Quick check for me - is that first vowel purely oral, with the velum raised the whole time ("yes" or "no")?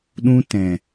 no